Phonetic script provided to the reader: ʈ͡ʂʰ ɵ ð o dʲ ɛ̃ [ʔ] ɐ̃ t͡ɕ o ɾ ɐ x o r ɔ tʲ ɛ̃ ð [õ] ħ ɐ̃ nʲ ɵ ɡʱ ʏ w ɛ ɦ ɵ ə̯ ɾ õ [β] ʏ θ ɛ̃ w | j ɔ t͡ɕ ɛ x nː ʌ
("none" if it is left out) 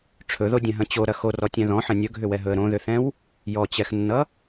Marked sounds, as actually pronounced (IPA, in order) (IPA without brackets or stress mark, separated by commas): ɦ, ɔ̃, ð